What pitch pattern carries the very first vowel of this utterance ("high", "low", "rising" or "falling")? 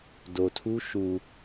low